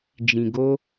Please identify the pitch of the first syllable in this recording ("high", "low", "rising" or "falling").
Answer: low